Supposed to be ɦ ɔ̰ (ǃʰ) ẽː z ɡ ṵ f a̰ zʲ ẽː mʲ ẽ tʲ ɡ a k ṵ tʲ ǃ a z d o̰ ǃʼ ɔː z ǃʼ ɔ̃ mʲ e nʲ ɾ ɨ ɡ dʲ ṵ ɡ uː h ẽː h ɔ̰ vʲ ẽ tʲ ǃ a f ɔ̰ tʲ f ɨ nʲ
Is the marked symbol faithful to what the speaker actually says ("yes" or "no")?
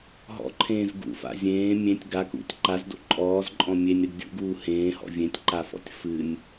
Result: yes